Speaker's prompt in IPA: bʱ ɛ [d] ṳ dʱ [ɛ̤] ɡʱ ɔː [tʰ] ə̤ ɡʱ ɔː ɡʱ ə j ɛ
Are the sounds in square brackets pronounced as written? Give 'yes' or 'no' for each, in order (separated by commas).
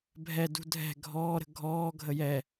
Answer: yes, yes, no